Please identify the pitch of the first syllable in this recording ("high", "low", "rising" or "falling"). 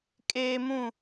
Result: high